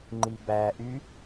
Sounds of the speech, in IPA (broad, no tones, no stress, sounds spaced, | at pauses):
ŋ͡ǃ i b æ ʔ y